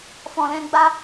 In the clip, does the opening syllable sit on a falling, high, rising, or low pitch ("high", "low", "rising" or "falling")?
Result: low